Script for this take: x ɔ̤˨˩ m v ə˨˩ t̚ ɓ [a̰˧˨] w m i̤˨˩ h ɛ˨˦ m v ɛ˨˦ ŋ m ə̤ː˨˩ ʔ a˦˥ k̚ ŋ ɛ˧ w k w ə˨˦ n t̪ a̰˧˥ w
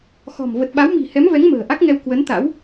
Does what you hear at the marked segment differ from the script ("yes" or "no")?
yes